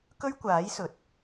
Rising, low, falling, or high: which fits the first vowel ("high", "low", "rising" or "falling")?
high